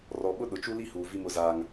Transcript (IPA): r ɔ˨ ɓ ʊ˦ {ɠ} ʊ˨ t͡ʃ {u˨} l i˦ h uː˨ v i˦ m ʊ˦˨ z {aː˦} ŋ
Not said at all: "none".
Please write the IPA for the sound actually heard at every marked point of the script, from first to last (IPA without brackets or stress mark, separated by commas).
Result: ɗ, u˦, aː˦